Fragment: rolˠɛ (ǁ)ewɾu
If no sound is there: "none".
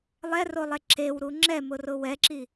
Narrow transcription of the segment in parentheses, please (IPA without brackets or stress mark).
ǁ